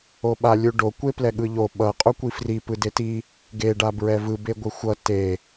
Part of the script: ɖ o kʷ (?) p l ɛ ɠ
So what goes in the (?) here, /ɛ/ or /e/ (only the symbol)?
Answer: e